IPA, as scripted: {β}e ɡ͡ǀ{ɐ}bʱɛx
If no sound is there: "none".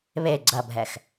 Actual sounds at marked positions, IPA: β, ɐ

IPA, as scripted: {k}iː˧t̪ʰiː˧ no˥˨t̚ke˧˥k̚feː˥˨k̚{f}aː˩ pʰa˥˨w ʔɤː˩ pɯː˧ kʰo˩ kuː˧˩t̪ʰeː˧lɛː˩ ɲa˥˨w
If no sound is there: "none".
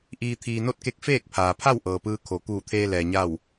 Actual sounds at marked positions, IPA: ʔ, pʰ

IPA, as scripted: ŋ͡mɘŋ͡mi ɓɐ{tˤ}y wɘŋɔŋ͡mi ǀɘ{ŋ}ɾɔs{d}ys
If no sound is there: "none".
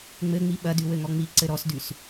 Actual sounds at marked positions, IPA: d, none, d

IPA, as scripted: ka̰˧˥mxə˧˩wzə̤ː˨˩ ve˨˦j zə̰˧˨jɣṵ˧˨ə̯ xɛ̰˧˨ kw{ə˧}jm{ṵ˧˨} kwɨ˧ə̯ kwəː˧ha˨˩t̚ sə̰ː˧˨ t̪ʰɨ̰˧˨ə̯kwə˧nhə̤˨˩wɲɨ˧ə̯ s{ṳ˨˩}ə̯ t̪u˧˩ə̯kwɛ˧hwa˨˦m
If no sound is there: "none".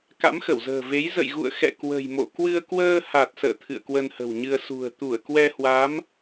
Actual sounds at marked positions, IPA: ə̤˨˩, o̰˧˨, ṳ˨˩

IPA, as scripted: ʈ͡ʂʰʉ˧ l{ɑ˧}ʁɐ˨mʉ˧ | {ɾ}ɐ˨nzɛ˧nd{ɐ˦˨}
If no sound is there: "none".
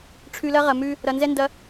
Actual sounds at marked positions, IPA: ɐ˧, ɾ, ɐ˧

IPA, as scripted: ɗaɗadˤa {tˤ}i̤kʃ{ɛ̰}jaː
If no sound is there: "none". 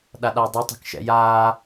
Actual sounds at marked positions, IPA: tˤ, ɛ̰

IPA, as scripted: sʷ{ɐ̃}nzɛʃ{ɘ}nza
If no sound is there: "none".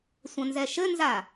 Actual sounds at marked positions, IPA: ɐ̃, ɘ

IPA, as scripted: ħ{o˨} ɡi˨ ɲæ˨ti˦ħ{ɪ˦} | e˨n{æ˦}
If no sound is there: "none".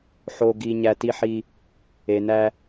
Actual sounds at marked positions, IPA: o˨, i˦, æ˦

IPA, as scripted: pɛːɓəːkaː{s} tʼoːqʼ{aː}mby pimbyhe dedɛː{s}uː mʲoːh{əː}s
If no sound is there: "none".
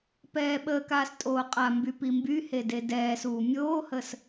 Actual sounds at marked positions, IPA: s, a, s, əː

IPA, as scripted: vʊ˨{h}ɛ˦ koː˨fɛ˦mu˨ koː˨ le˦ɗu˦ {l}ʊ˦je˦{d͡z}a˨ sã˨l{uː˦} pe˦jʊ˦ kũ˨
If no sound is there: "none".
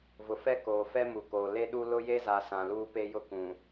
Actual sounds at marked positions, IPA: f, l, z, uː˦

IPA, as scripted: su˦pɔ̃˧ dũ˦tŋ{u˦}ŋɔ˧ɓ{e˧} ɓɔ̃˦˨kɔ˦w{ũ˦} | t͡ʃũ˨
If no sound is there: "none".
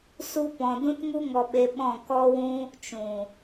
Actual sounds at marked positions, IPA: u˦, e˧, ũ˦

